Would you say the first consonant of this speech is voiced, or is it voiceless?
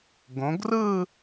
voiced